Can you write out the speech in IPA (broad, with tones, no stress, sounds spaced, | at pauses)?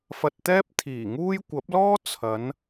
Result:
f ɐ˧ t̚ t̪ ɛː˥ p̚ t̪ʰ iː˨˩ ŋ uː˥ j kʷ ɐ˨˥ p̚ l ɔː˥ t͡sʰ ɐ˨˧ n